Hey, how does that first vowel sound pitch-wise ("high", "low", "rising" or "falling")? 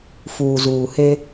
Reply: low